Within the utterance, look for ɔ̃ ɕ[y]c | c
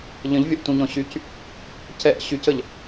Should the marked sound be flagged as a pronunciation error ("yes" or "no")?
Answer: no